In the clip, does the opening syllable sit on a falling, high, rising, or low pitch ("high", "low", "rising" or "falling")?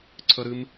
high